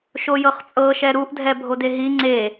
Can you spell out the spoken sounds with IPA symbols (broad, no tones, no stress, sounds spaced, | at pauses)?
ʃ o j ɤ χ t͡sʼ ɤ ʃ ɛ ɾ u ʔ dʱ ɛ bʱ o d e ɦ i ŋ͡ǀ e